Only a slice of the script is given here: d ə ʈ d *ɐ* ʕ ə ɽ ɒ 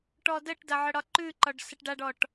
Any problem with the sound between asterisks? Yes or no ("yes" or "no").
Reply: no